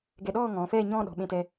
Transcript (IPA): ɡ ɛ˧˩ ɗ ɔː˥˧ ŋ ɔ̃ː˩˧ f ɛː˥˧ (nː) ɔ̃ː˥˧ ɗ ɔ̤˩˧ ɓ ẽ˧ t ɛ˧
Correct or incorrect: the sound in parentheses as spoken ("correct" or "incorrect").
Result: incorrect